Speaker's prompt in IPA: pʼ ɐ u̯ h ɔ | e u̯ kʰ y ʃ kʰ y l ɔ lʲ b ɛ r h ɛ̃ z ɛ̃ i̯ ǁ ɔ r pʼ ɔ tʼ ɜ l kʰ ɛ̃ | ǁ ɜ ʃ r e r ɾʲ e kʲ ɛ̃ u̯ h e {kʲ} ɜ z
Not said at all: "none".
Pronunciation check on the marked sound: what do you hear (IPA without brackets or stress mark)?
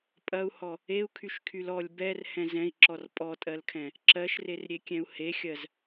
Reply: xʲ